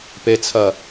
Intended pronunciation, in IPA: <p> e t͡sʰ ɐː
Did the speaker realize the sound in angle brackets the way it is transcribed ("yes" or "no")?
yes